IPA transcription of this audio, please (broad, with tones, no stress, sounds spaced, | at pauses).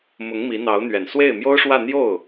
m ʊ˧˥ ŋ m i˧˥ n̪ ɑ˧˥ ʊ̯ n̪ ɥ ɛ˨˩ n s w e˥˩ ɪ̯ m j o˥ ʊ̯ ʂ w ä˥˧ n̪ j o˥˩ ʊ̯